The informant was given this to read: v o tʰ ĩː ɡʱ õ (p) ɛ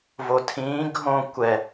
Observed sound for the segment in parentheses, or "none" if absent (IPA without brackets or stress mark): kʷ